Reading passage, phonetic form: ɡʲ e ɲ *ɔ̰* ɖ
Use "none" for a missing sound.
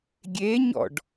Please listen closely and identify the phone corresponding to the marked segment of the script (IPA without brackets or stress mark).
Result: ɔ̰